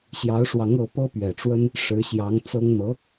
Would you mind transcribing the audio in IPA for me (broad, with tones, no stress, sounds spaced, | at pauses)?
ɕ j ɑ˧˥ ʊ̯ ʂ w ɑ˧˥ ŋ ɤ˧˥ p ɤ˥ p ɥ ɛ˨˩ ʈ͡ʂ w ə˥ n | ʂ ɻ̩˧˥ ɕ j ɑ˧˥ ŋ t͡s ɤ˥ ŋ n̪ ɤ˧˥